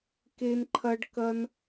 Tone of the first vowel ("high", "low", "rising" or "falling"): high